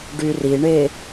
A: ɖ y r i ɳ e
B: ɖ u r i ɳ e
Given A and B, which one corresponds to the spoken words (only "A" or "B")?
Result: A